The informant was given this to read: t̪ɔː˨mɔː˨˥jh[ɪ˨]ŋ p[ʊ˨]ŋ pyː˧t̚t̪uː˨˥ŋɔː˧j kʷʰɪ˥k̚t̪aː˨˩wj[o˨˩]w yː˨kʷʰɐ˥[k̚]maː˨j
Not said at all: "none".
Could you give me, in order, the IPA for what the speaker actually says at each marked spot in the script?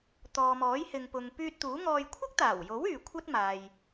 ɪ˨, ʊ˨, o˨˥, t̚

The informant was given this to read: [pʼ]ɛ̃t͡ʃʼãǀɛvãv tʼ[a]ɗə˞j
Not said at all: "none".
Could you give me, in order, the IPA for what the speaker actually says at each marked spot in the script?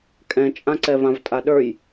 kʼ, a

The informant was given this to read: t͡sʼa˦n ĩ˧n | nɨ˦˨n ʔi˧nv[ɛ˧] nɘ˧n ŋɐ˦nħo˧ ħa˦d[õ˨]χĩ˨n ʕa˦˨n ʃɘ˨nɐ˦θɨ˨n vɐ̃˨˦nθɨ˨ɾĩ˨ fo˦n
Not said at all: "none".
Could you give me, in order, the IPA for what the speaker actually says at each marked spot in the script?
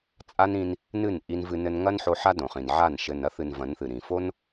ɨ˧, õ˨

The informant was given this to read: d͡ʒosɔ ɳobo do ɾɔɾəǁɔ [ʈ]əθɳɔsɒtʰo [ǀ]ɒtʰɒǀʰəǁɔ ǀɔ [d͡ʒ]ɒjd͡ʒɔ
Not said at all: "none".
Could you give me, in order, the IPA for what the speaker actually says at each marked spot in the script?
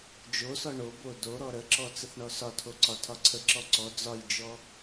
t͡s, ǀ, d͡z

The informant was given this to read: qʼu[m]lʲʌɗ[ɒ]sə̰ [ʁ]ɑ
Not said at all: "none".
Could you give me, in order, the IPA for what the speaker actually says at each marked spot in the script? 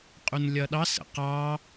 n, ɑ, q

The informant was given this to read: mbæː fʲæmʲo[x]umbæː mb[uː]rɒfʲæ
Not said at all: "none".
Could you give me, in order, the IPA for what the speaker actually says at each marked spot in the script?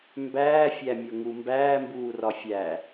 ŋ, uː

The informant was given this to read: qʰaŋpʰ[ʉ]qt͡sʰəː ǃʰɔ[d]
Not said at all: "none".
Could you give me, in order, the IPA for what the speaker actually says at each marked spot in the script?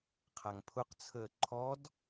ʊ, d

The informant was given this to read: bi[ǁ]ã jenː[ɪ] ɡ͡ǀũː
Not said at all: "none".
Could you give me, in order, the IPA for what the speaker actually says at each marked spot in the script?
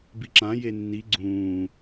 ǁ, i

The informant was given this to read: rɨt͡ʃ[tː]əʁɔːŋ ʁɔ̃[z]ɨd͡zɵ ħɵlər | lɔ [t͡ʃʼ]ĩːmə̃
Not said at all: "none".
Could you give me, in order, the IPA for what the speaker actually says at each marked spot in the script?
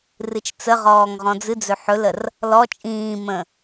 t͡s, d͡z, t͡ʃʼ

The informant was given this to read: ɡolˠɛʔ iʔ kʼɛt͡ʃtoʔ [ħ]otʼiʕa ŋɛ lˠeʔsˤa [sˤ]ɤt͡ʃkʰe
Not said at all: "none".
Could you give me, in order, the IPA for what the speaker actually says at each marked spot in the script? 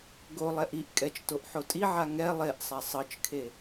ħ, sˤ

